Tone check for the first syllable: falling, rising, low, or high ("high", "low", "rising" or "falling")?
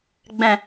low